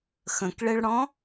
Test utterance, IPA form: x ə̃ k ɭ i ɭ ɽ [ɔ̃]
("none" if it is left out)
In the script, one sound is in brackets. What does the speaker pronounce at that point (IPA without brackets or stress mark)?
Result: ɔ̃